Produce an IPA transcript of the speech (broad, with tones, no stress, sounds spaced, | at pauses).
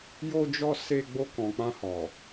j o˧ d͡ʒ ɔ˧ s e˧ ɡ͡b o˧ k ɔ̃˨ k͡p ã˧ h ɔ˨